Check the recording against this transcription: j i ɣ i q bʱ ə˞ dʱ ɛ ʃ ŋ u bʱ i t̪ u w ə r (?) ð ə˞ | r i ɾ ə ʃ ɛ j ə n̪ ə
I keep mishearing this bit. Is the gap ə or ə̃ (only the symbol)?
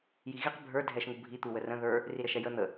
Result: ə̃